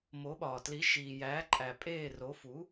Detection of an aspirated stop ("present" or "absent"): absent